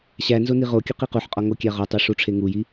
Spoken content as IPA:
ɕ æ n z o n i ʁ o kʲ u q i q u ħ qʼ ɒ ŋ o kʲ æ ʁ ɒ tˤ i ʂ u ʈ͡ʂʰ e ŋ u j i

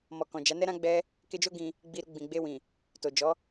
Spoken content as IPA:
m ɔ˨ k ɔ̃˨ d͡ʒ a˨˦ n ɛ˦ ɾ ã˦ ɡ͡b ɛ˦ | k e˧ d͡ʒ o˦ ɡ ĩ˧ | ɡ͡b i˧ ɾ u˧ ɡ͡b ĩ˨ ɡ͡b e˧ w ĩ˨ | t o˨ d͡ʒ ɔ˨˦

